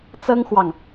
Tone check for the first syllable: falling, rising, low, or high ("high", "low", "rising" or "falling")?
high